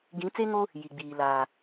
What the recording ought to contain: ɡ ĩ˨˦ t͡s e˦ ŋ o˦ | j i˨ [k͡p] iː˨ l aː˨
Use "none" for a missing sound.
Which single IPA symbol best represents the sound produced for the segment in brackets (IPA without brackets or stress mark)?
ɡ͡b